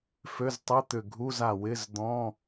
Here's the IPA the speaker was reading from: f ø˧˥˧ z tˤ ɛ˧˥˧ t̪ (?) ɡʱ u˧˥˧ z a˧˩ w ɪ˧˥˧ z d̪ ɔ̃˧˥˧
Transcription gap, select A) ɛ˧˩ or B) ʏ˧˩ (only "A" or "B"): B